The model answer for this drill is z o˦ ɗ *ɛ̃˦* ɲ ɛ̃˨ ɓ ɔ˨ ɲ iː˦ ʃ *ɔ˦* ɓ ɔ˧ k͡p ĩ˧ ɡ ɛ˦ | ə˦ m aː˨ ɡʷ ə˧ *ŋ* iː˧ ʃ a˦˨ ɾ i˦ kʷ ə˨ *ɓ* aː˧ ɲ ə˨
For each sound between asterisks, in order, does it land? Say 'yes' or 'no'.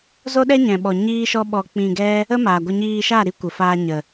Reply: no, yes, no, no

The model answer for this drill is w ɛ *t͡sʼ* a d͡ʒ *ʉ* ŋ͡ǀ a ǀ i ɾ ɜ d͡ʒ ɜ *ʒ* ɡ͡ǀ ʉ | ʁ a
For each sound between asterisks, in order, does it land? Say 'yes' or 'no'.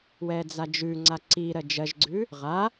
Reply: no, yes, yes

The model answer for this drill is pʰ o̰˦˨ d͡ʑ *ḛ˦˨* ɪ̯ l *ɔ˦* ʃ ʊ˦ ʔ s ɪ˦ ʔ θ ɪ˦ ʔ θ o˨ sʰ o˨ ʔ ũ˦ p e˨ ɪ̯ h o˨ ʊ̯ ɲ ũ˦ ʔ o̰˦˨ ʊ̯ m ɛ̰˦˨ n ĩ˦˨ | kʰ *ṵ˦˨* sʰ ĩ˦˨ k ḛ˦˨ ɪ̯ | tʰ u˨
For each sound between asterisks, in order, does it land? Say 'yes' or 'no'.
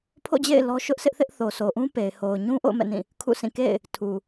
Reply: yes, yes, yes

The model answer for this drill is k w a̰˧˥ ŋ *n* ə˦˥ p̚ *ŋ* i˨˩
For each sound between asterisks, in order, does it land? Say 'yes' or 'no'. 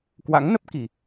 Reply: yes, no

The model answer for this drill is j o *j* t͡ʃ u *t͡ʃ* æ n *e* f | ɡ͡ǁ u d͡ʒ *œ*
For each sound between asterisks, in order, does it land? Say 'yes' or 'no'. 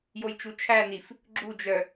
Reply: yes, no, no, yes

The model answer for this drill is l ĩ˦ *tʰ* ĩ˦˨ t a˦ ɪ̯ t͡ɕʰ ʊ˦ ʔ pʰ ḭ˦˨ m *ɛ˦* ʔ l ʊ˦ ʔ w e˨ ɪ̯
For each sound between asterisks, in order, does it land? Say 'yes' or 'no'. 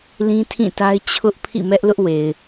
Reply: yes, yes

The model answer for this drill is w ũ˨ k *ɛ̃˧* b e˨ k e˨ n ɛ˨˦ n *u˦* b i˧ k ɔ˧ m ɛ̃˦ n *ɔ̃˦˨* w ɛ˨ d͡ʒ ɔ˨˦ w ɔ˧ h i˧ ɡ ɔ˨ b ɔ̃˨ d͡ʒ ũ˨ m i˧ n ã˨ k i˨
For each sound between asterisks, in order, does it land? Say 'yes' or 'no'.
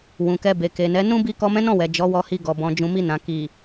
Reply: no, no, yes

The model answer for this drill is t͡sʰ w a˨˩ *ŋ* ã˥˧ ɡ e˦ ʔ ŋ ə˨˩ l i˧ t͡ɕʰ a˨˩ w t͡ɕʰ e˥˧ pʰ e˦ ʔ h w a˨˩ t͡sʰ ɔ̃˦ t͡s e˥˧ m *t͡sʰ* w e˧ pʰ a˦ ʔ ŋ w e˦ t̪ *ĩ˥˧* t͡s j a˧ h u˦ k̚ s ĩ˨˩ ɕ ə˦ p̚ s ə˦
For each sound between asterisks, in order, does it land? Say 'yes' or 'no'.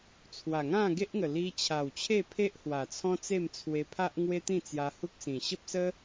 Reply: yes, yes, yes

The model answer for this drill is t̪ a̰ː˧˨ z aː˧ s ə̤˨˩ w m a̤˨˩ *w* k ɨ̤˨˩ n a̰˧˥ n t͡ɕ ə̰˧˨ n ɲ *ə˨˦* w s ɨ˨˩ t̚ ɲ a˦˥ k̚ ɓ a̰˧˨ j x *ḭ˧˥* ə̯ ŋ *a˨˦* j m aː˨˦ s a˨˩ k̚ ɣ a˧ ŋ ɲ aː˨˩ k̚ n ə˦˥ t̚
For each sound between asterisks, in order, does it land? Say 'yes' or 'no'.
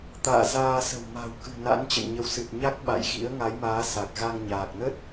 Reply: yes, yes, yes, yes

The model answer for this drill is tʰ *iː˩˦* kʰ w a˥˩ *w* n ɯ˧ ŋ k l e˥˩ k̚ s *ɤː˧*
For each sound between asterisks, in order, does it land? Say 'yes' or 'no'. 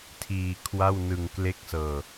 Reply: no, yes, yes

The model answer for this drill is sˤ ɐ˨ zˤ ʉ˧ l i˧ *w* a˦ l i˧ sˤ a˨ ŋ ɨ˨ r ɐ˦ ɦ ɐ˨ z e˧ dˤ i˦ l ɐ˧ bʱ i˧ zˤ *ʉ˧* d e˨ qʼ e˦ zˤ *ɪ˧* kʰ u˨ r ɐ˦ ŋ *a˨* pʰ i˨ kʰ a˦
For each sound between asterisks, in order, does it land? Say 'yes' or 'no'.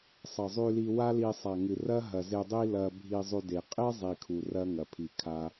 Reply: yes, yes, no, no

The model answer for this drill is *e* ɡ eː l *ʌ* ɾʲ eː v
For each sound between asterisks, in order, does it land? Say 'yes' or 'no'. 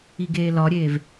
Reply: no, no

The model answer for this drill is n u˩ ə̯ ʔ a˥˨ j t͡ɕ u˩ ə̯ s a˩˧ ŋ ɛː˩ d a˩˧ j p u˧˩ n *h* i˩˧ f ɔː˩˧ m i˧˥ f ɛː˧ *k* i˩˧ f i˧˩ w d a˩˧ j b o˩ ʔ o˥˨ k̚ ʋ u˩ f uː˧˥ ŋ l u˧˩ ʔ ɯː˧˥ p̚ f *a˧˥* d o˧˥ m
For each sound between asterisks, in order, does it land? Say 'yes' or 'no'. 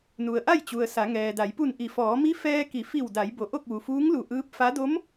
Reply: no, yes, yes

